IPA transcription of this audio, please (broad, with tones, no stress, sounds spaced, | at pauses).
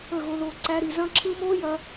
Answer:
ə˦˨ ɣ o˧ ð o˧ ǀ æ˧ ɾ i˨ z ɐ̃˦ ǁʰ ɯ˦ m oː˦ j ɐ˧